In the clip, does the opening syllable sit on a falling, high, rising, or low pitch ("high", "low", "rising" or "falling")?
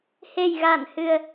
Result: low